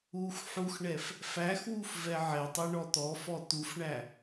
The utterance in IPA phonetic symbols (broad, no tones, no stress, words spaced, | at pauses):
ux ħuxɳɛf | fæxwuf vɛʕɛtˤɛ ɳɔt̪ɔfɔ t̪ufɳæ